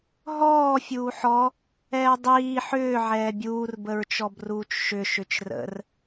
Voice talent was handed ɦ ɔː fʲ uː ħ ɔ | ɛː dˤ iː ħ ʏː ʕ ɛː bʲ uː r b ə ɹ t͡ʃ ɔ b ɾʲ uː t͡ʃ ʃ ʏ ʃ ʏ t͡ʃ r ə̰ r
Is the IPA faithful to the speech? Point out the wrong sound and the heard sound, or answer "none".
ɾʲ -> r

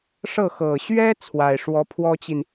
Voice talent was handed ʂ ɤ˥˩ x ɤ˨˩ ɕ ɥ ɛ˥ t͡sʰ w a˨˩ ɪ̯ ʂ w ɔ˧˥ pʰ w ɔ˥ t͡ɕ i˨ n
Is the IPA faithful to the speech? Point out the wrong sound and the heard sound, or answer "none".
none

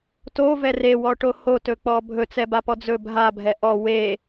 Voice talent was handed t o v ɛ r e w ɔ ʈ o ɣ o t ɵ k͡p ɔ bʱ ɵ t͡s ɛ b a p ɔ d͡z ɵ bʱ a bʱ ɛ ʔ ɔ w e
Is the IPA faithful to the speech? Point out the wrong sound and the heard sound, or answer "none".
ɣ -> h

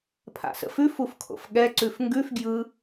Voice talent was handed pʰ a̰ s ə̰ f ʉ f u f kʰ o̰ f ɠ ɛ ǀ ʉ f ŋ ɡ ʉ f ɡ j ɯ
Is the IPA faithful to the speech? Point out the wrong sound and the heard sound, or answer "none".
none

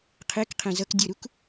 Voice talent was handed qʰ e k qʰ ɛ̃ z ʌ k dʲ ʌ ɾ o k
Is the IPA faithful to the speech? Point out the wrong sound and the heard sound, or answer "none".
o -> u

